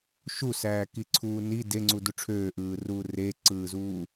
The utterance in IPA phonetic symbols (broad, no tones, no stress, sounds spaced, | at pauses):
ʃ u s æː k i ǀʰ uː n i d e ŋ͡ǀ u d u ʈ͡ʂʰ øː ʔ ɯː r uː r e ǀ ɯː z uː